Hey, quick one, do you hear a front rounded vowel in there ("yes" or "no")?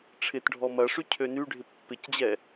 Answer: yes